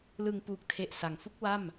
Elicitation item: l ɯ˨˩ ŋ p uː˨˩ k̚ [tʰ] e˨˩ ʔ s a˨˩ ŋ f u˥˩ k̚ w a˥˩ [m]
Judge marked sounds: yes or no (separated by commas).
yes, yes